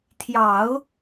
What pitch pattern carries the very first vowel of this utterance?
low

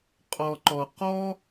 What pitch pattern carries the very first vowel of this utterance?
low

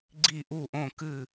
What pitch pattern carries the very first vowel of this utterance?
falling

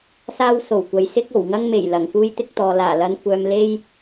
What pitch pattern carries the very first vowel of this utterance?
high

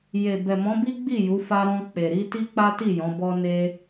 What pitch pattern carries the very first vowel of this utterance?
low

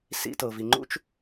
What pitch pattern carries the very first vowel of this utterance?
high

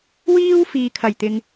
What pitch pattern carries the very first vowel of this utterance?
high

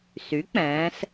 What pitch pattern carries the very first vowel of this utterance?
rising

